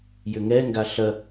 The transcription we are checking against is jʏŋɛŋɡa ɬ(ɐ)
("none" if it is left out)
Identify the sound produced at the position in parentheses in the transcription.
ɐ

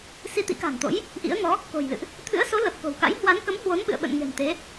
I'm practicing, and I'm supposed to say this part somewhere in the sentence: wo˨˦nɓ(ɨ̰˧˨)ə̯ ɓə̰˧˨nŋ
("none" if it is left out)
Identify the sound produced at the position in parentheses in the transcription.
ɨ̰˧˨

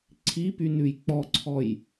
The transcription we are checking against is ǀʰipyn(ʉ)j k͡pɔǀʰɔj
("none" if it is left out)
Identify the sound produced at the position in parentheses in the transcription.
ʉ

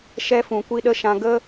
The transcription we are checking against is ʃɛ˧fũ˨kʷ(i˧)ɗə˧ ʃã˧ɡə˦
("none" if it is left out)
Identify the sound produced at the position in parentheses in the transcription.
i˧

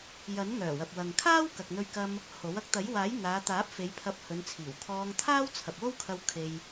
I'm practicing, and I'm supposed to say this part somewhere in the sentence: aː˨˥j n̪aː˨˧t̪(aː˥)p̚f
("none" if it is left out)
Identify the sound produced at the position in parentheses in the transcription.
aː˨˥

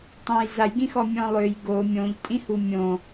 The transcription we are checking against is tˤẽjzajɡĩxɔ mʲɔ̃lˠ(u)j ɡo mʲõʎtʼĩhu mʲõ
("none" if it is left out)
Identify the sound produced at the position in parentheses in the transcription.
ø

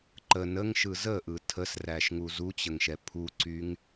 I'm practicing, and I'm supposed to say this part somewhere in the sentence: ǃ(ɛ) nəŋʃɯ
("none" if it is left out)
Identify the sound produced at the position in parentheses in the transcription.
ə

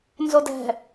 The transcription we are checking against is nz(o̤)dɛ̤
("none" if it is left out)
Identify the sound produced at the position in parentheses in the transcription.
o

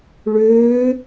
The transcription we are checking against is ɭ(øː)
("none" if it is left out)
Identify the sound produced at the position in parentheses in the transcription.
øː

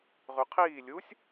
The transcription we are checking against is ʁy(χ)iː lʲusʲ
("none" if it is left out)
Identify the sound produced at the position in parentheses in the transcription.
qʰ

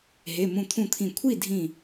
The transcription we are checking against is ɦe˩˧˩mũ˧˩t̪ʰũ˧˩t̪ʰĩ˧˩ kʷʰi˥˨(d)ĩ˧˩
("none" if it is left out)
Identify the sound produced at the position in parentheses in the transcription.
dʱ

